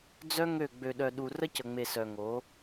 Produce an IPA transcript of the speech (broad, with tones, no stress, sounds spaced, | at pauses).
d͡z œ˦ ŋ ø˦˨ ɡ͡b ø˨ ɗ œ˨ ɗ u˨ r ə˦ c ə˨ ŋ͡m e˨ s œ˨ ŋ o˨˦